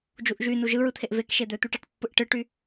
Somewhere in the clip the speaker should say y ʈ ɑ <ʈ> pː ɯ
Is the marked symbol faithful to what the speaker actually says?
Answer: yes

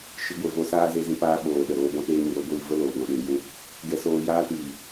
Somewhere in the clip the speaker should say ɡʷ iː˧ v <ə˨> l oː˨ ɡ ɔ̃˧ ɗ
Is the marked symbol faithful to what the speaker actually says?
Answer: no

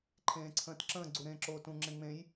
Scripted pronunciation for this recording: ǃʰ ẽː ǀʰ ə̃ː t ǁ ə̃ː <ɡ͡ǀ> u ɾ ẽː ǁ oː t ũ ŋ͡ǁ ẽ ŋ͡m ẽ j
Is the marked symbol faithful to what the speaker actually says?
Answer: yes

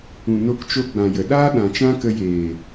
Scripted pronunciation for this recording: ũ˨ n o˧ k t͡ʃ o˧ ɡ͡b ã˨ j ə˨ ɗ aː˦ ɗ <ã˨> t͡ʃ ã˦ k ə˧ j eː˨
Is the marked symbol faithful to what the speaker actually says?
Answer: yes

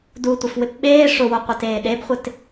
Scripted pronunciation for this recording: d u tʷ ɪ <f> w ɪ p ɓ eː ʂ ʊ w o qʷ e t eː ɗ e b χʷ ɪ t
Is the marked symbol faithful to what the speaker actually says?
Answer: yes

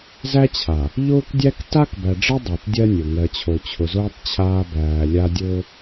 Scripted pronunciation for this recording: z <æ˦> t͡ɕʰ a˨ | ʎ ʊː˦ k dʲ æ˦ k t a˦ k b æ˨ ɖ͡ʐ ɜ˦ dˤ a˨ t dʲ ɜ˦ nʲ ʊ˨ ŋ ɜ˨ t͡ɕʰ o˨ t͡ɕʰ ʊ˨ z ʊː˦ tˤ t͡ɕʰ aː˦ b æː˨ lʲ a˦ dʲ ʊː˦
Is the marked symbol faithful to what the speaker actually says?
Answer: yes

